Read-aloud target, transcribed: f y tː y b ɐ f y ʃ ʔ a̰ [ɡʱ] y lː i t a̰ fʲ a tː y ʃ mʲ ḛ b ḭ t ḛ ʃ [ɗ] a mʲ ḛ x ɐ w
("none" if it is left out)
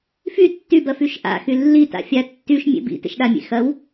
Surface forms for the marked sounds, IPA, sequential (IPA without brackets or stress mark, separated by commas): x, ɗ